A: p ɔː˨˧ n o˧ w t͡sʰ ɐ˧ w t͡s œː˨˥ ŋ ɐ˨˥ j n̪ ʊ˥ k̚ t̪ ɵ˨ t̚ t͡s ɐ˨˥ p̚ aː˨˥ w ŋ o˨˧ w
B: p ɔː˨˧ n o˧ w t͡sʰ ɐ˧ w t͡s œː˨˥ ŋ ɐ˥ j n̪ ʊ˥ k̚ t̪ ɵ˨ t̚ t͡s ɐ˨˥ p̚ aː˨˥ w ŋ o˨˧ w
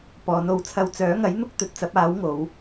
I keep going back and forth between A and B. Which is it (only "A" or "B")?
A